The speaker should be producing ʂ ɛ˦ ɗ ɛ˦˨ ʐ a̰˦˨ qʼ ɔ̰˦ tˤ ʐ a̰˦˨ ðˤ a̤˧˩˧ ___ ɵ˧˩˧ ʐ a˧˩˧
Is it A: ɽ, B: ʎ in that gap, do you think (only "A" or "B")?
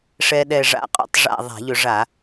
B